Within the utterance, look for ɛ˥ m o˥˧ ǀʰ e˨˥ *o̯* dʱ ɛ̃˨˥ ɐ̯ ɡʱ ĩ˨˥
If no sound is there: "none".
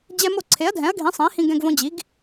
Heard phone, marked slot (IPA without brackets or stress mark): ɐ̯